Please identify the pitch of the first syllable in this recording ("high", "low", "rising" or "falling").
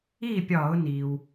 falling